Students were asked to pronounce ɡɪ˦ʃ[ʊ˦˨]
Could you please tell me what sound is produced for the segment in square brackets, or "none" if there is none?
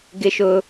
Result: ʊ˦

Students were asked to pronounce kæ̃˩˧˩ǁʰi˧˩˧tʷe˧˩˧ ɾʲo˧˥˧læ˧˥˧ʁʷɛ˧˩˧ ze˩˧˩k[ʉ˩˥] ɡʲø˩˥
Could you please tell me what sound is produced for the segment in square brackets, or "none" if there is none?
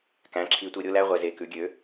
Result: ʉ˩˥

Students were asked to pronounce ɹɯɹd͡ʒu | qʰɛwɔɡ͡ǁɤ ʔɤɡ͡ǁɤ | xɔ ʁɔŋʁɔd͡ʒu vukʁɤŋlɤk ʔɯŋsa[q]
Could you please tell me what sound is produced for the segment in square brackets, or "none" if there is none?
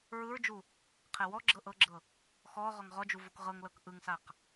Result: q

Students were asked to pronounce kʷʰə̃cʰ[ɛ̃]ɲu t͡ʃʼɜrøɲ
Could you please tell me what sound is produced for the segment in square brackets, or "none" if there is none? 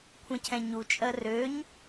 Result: ɛ̃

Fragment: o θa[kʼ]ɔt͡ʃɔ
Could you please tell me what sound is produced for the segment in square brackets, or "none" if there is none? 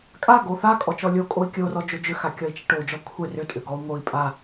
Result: kʼ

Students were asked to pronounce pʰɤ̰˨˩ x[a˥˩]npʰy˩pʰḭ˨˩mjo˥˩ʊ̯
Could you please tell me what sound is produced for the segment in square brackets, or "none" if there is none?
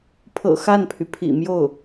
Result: a˥˩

